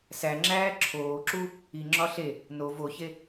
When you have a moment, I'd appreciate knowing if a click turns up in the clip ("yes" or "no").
yes